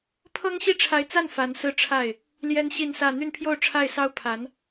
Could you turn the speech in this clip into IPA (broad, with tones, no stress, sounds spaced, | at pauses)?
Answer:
pʰ ɤ˥ ŋ ɕ i˥ ʈ͡ʂʰ a˧˥ ɪ̯ t͡s a˥˩ n f a˧˥ n s ɹ̩˥˧ ʈ͡ʂʰ a˥˩ ɪ̯ | l j ɛ˥ n ɕ i˥˧ n s ä˥˧ n̪ y˥˧ n pʰ j o˥˧ ʊ̯ ʈ͡ʂʰ a˥˩ ɪ̯ s ɑ˥ ʊ̯ pʰ a˧˥ n